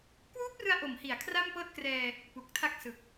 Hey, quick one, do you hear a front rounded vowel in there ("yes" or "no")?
no